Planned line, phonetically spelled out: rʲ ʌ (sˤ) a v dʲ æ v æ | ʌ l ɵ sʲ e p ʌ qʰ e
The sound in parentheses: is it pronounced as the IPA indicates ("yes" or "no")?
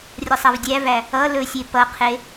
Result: yes